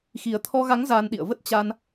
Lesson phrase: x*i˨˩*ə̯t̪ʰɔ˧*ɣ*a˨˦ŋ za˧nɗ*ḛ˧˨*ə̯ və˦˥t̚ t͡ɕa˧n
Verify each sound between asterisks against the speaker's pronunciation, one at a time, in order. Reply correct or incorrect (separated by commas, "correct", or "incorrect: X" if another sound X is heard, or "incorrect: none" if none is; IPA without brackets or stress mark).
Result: correct, correct, incorrect: ḭ˧˨